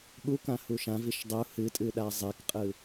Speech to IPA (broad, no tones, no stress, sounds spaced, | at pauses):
ɠ u k ã h u ʃ ã v i ʃ dˤ u h ɨ tʼ ɨ ɗ a zˤ e k qʼ ɯ